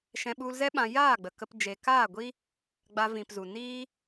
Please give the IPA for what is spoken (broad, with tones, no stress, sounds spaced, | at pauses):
ʃ ɛ̃˧ ɓ u˧ l z ɛ˦ ɓ ã˧ j aː˦˨ ɡ͡b ə˨ k ə˧ p d͡ʒ e˨ k aː˦˨ ɡʷ i˦ | ɡ͡b a˧ v ĩ˨ p z u˨ n iː˦